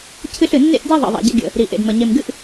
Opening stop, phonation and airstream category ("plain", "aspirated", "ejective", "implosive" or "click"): aspirated